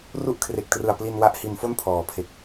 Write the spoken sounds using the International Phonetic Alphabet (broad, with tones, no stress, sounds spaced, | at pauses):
r u˥˩ ʔ kʰ r e˨˩ k̚ t r ɯ˨˩ a̯ p l i˧ n w a˦˥ ʔ h i˧ n f o˥˩ n pʰ ɔː˩˦ pʰ e˨˩ k̚